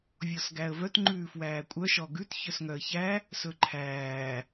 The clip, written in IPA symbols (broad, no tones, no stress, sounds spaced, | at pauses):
vʲ ɔ s ɡ æ ə̯ v œ t ŋ͡ǃ ʉː f w æː kʷʼ œ ʃ ɔ ɡ ʉ t ç œ s ŋ œ ə̯ ç æ | s ɵ ǃʰ æː